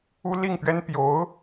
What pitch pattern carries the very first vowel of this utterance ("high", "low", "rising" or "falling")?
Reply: high